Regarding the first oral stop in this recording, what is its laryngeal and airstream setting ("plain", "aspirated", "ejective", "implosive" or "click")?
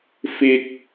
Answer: plain